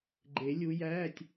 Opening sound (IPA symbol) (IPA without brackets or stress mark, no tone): ɡ͡ǃ